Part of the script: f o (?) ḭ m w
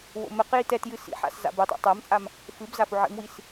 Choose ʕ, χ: ʕ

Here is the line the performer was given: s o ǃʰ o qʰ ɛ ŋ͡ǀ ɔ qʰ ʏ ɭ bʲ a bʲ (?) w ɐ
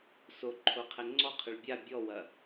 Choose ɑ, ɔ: ɔ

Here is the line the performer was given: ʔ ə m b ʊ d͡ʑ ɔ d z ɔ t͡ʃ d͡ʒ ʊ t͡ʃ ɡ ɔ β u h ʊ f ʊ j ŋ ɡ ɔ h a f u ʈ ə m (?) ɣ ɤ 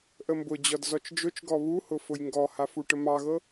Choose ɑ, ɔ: ɑ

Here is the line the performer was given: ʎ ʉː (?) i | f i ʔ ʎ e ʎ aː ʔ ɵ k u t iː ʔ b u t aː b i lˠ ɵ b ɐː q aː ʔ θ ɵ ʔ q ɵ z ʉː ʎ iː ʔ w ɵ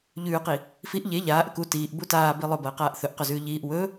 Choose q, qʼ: q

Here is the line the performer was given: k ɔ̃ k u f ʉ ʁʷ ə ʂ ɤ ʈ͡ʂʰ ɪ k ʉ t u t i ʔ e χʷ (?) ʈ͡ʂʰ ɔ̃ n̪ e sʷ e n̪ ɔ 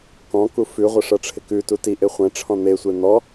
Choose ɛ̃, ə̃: ɛ̃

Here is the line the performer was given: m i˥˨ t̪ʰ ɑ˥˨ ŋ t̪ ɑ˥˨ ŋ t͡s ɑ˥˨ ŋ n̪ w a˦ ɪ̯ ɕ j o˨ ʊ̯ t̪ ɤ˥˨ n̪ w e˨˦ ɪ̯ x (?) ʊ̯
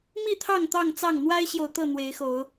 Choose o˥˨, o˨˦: o˨˦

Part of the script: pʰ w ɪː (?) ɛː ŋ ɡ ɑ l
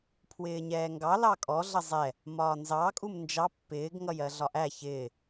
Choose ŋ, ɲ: ɲ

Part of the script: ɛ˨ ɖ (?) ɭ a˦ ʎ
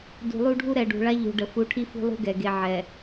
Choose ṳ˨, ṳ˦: ṳ˨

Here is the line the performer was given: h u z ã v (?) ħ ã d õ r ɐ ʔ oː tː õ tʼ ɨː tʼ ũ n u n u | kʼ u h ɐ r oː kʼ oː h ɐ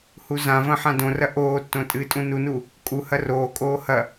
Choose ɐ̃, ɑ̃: ɐ̃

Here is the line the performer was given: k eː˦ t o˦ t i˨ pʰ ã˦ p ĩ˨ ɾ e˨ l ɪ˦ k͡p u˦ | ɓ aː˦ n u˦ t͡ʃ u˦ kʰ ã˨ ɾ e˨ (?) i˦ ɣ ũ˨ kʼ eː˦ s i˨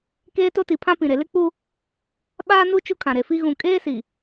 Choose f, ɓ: f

